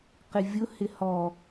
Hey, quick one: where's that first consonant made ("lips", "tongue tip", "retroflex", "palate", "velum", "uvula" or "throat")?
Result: uvula